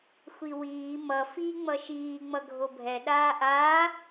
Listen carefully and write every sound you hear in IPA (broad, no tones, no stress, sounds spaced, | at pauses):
xʷ i w iː m ʌ f i ŋ͡m ʌ ʃ iː ŋ͡m ʌ ɡʱ o bʱ ɛ ɗ aː ʔ aː